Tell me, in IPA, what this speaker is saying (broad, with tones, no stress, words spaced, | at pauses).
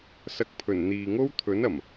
sɐ˨k̚pʰɵ˨˩n n̪iː˨ŋo˥w t̪ʰɵ˨˥nɐ˨˩m